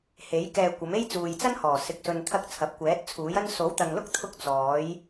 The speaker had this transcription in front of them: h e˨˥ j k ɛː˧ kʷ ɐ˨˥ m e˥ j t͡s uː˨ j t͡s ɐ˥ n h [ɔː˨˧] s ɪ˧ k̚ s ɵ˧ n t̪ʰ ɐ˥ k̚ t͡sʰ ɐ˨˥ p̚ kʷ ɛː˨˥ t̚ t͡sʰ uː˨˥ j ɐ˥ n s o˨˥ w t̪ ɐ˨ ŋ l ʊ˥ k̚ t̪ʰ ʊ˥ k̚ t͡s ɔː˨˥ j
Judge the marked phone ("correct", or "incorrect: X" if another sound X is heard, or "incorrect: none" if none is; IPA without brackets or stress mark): incorrect: ɔː˨˩